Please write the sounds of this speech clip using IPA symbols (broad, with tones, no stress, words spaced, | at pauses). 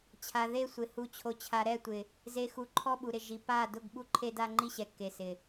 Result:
t͡ɕʰa˨ðe˦˨sʷɪ˨ hu˨t͡ɕʰo˨t͡ɕʰa˨ ɾɛ˦˨tʷɪ˨ | ze˨ xu˨ǃʰɔ˦ɓu˨ɾɪ˨ ʒi˨pa˦˨ dʊ˦˨ɡɓu˦ǃʰe˦da˦ ŋ͡ǃi˦ɕɛ˨kːe˨sɪ˨